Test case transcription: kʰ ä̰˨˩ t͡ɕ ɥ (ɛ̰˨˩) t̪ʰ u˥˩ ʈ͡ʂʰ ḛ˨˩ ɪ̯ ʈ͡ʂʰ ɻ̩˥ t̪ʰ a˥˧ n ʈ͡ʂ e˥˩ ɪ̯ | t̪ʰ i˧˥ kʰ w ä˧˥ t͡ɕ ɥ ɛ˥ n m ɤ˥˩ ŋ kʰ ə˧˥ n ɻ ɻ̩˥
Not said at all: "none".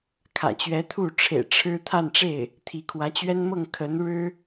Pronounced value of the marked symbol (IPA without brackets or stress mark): ɛ˧˥